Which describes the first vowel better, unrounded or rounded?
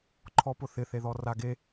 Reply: rounded